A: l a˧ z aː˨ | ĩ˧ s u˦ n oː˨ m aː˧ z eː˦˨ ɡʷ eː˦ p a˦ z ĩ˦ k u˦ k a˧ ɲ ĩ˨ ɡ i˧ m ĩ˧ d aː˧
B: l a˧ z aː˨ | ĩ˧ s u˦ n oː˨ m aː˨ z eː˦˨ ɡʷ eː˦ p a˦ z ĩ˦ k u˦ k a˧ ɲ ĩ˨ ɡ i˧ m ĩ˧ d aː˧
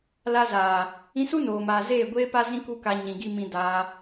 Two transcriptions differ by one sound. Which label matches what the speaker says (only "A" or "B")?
B